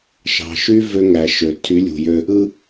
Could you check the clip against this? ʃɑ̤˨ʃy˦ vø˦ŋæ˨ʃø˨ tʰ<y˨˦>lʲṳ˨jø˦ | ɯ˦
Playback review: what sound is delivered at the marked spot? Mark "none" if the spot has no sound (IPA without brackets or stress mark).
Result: y˨˦